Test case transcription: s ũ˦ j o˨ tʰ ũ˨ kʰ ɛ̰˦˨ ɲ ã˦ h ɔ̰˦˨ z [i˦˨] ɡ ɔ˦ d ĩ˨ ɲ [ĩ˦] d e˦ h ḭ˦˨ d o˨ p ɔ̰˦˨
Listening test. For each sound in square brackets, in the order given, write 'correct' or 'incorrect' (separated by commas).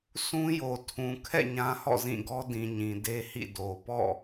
incorrect, incorrect